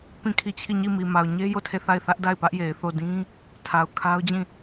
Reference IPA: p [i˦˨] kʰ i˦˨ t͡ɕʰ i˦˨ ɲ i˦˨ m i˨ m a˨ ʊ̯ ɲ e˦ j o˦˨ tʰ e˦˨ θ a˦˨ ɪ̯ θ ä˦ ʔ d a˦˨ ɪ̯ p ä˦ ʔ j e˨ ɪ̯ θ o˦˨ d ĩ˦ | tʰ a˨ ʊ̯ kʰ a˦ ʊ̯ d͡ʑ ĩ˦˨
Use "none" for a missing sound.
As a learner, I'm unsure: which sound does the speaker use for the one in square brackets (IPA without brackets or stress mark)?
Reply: ĩ˦˨